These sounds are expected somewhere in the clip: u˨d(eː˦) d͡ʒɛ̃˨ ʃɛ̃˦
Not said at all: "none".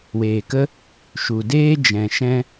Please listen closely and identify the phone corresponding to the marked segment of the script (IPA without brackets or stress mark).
eː˦